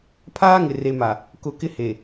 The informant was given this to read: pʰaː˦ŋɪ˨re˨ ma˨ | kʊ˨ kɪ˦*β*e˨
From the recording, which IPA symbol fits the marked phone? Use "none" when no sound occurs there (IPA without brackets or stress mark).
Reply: h